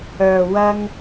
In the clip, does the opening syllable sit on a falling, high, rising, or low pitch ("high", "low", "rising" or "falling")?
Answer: low